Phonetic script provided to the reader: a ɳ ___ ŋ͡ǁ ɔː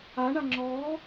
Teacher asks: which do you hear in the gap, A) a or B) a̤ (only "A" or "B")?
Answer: A